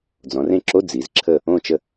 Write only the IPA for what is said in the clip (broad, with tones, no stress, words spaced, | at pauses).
d͡zɔ̃˩˧rẽ˦˨ǁo˧˥˧ d͡zi˩˧zǁʰə˦˨ | õ˦˨t͡ʃə˦˨